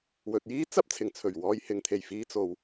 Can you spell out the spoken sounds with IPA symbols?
w ɵ˨ t̚ j iː˥ t͡s ɐ˥ p̚ t͡sʰ ɪ˨˩ ŋ t͡sʰ ɵ˨˩ ɥ w ɔː˨ j h ɪ˨˧ ŋ t̪ʰ e˨˩ j f iː˧ t͡s o˨ w

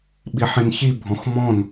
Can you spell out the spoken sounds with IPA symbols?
ɓ i ħ ĩ n ç i bʱ ɔ̃ x m ɔ̃ n

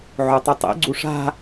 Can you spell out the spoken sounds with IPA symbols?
ʕ o tˤ u tˤ ḭ ɡ͡ǀ u ʂ a̤

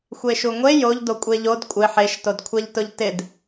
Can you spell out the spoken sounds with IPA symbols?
xʷ e ʃ u ŋʷ e j o ʎ d o kʷʼ e ʎ o d kʷʼ ɪ ħ e ʃ t o d kʷʰ ɛ ʎ t ʊ ʎ t ɪ d

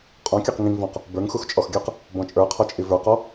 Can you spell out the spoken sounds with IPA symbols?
qʼ ɔ̃ kʲ ə˞ q ŋ ĩ ŋ v ɔ̃ q | b ə˞ ŋ x u x t͡ʃʼ ɔ x ɡʲ ə˞ q | b ɔ̃ t͡ʃʼ ə˞ qʰ ɔ t͡ʃʼ i v ə˞ q ɔ

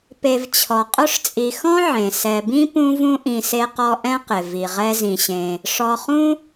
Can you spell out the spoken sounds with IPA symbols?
p e˨ v t͡ɕʰ ɔ˩ qʼ ʊ˦ ʂ t͡sʼ i˨ x ɔ̃˥ ʕ ẽ˩ s ɛ˨ b ĩ˥ p ũ˦ v ũ˦ ʔ ĩ˨ s e˦ q ɔ˦ ʔ ɛ̃˥ q ɪ˩ v i˩ ʁ ɛ˦ z ĩ˨ ɕ ẽ˨ | ʂ ɔ˨ χ ũ˥

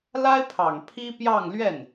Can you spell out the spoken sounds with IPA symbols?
l a˥ ɪ̯ pʰ ɑ˨˩ ŋ pʰ i˥ p j ɑ˥˧ ŋ l ɥ ɛ˥˩ n

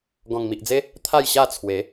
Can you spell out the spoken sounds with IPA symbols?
ɡ ɔ̃˨˩ ŋ m i˨ ʔ d͡z e˦ | t̪ʰ a˥˧ j ɕ a˥˧ t͡sʰ w e˨˦

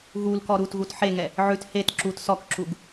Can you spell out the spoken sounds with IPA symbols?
ɣ u l k ɔ ɾ u t ɣ u t ħ e ŋ ɛ | ʕ ʉ t h e t ǁ u t s ɔ k ǁ u ɡ

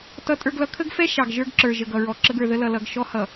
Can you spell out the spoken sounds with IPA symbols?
t ʌ˦ tʼ ə˞˦ ɡ l ʌ˦ kʰ ə˦ ɡ f ɛ˦ ʃ ɑ˨ ɡ ʒ ə˞˦ ɡ ǁ ə˞˨ ʒ ə˨ ɡ ʌ˨ ɹ ɔ˨ ǁ ə˦ ɡ ə˞˨ ð ə˦ l ʌ˨ l ʌ˨ ɡ ʃ ɔ˦ h ʌ˨

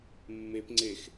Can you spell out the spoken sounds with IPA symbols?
mː e p ŋ͡ǀ e x

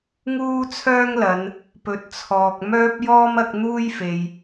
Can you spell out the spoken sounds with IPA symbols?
ŋ uː˥ t͡sʰ œː˥ ŋ l ɐ˨˧ n | p ɵ˨ t̚ t͡sʰ ɔː˨ k̚ m œː˥ p̚ j ɔː˥ m ɐ˨˥ k̚ n̪ uː˥ j f e˨ j

